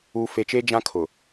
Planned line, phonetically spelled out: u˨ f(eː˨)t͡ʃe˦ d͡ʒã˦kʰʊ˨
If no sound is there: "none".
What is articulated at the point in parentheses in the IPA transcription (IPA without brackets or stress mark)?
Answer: e˨